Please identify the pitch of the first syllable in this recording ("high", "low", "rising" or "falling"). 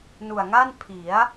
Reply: low